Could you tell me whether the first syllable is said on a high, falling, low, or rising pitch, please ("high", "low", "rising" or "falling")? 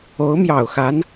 rising